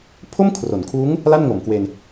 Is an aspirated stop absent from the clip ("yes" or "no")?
no